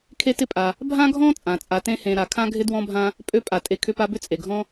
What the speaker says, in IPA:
kʰe˦tɪ˦pʼa˨ | bʱã˦ɡʱɔ̃˦ t͡sʼã˩t͡sʼa˨tẽ˦hẽ˨ ɾa˩kʰã˥ɡʱɪ˥ dwɔ̃˦bʱã˦ | pʼø˦pʼa˩tʼe˨ kʰʏ˦pa˦bʏ˥ t͡sʼe˩ɡʱɔ̃˥

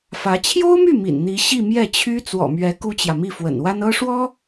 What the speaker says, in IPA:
fä˧˥ t͡ɕʰjo˥ʊ̯my˥˩ mḭ˨˩n n̪i˧˥ɕi˥˧ mjɛ˥˩t͡ɕʰy˥ t͡swɔ̰˨˩mɥɛ˧˥ ku˥t͡ɕjä˨mi˥˩ fwə̰˨˩nwa˥n ɤ˥ʂwɔ˥

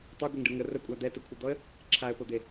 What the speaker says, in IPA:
tˤeɡʷeŋɖɯ ŋə rəkʷʼa d̪ɛtəkʷʰɯd̪ɔə̯ | ǁʰaə̯pod̪e

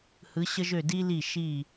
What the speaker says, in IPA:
hɯ˩˧ɕə˧ʒø˧˩ di˧li˧˩ ʃi˧˩

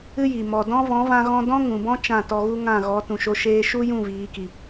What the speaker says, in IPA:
ɨ˦ji˨ mɔ˨dɔ̃˦ vɔ̃˨˦vã˧ɣɔ̃˧ dɔ̃˦ŋũ˨bɔ̃˦ t͡ʃã˦˨tɔ˧ɣu˦ ŋã˦˨ɣɔ˨˦tũ˨ʃo˧ ʃeː˧ʃu˦jũ˦˨ viː˨˦ki˨

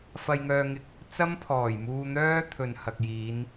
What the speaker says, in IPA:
fɐ˧jŋœː˧ŋɪ˧k̚ | t͡sɐ˥mpʰɔː˨˩jmuː˧n̪œː˥ t̪ʰɵ˨nhɐ˨k̚jiː˨˧n

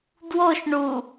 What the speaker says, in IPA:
dwoʃ ɳu

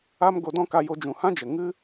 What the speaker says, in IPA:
a˦m ɡo˧dɔ̃˦ka˧ jo˧d͡ʒũ˨hã˦d͡ʒə˨ ŋɨ˦

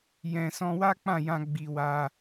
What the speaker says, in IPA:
jɛ̃˨ sɔ̃˧wa˦k͡pã˦˨jã˧ ɡ͡bi˧wa˧

